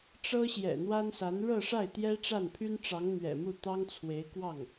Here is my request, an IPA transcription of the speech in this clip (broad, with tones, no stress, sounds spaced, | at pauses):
ʈ͡ʂ ɤ˥ ɕ j ɛ̰˨˩ n̪ w a˥ n s a˧˥ n ɻ ɤ˥˧ ʂ a˥˩ ɪ̯ t̪ j ɛ˥ ʈ͡ʂ a˥˩ n pʰ y˥ n ʈ͡ʂ ɑ˧˥ ŋ n̪ ɥ ɛ̰˨˩ m u˥˩ t̪ ɑ˥ ŋ t͡sʰ w e˧˥ ɪ̯ k w ɑ˥˩ ŋ